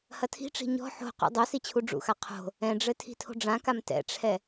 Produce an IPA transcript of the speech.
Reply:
hɐtʰi̤ʈ͡ʂi̤ ɲɔ̤ ħo̤qṵ dˤo sit͡ɕʰuɖ͡ʐṵxa qʰo̤ | ɛ̃ɖ͡ʐɘ tʰi̤tʰo̤ɖ͡ʐãkam tɛ̰ʈ͡ʂʰɛ

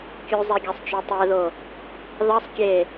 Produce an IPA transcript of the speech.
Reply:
kʲuzˤeɡʲæsˤt͡ʃo tˤɛðo | ðɑsˤ kʲe

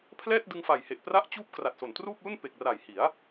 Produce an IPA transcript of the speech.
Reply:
pʰlɛː˥˩t̚dɯ˧ŋfa˨˩jhe˨˩ʔ pra˦˥ʔt͡ɕuː˦˥p̚kra˨˩t̚ so˨˩ntruː˥˩p̚lu˥˩n pe˨˩k̚ra˨˩jhi˩˦a̯

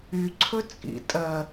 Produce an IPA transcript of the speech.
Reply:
y ǀʰɵt͡sʼḭ tʼɜ

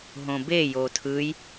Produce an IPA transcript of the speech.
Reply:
ɦõbejo tʰɯj

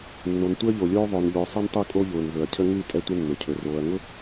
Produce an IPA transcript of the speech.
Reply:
nːo˨n tʷəː˦ʎo˨lʲoː˦ ðˤʊː˨n ʎʊː˨ sˤɛ˦ntˤʉ˦˨ kʼo˦ʎʊː˨nvɵ˨ɐ̯cʰə˦ ŋʉ˦˨ tʼɛ˦tʷə˦nːʊ˨cʰɵ˨ roː˨ɐ̯ŋʊ˦

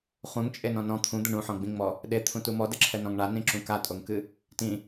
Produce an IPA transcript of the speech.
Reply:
χũŋt͡ʃʼenɔ̃ nɔ̃ t̪ʰũd̪ɛɳ ũħɔ̃ɡ͡bĩŋ͡mɔ | ɗet̪ʰũtu mɔdɘǁʰɛnɔ̃ŋ ɳanĩǁũ katʼoŋkɨ | tĩ

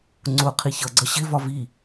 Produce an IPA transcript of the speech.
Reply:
ŋ͡ǀʊ qʰiçʌɡ͡ǀʌ ɕɪvɒ vi

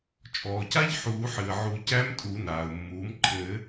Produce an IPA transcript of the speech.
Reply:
t͡ʃʼɔː˩ca˦˥ʎ ħuː˨˩˦ħɨ˩ə̯ʕu˨˩˦ cæ˦˥mtʼu˨˩˦naː˩ʊ̯mːuː˩˥m ǃʰɘ˨˩˦

